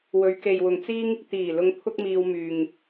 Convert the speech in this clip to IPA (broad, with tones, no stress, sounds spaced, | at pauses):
w ɵ˨˧ ɥ k e˨ j w ʊ˨ ŋ t͡s iː˥ ŋ | t̪ iː˨˩ l ʊ˧ ŋ pʰ ʊ˥ k̚ m iː˧ w m yː˨ ŋ